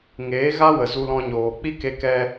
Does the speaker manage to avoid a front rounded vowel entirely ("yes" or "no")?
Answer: yes